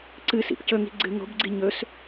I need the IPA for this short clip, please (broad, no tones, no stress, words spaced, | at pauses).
ǀɨsḭp cɵŋi̤ ɡ͡ǀɨ ŋo̤bɡ͡ǀi ɲɵs